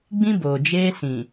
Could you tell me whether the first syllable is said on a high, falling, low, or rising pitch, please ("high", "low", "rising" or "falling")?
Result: high